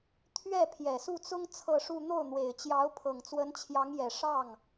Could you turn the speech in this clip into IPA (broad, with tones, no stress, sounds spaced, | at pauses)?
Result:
t̪ʰ ɥ ɛ˥˩ pʰ j ɛ˨˩ s u˥˩ t͡s ʊ˥ ŋ t͡sʰ ɤ˥˧ ʂ u˥˧ n̪ o˥˩ ʊ̯ n̪ w e˨˩ ɪ̯ t͡ɕ j ɑ˧˥ ʊ̯ pʰ ɤ˨˩ ŋ t͡s w ə˧˥ n t͡ɕʰ j ɑ˧˥ ŋ j ɛ˨˩ ʂ ɑ˥˩ ŋ